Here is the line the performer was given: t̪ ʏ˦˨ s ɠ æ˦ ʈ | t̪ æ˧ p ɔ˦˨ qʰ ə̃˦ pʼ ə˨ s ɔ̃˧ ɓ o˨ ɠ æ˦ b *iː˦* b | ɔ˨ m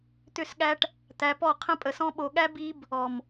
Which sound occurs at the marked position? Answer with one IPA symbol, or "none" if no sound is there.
i˦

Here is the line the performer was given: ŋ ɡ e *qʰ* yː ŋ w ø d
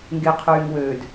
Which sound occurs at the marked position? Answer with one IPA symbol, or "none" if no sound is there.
qʰ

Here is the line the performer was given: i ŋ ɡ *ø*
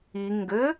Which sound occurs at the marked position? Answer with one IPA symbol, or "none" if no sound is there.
ɘ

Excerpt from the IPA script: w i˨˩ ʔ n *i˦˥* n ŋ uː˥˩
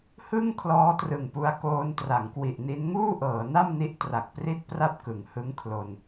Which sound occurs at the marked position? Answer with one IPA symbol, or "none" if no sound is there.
i˦˥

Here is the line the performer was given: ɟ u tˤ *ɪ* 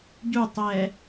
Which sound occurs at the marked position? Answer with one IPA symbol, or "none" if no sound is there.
ɛ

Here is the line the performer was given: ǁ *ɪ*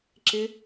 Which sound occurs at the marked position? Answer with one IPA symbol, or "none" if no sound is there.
ɪ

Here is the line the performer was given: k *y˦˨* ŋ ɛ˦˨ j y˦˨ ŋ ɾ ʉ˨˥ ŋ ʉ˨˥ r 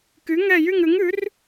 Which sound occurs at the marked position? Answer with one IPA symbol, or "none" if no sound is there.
y˨˥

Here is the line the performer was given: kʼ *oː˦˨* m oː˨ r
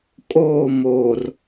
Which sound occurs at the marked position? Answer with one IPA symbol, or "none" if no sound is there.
oː˦˨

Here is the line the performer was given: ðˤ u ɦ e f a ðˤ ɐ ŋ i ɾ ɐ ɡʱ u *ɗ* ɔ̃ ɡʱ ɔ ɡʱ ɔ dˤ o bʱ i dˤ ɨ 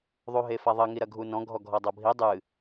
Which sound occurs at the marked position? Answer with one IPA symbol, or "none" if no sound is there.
n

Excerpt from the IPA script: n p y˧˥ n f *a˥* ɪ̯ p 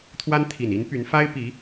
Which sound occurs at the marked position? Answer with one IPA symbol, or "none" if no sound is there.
a˥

